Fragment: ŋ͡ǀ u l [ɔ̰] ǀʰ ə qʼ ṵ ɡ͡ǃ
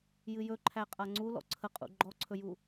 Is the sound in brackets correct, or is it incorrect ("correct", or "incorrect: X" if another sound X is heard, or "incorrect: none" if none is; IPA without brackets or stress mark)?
correct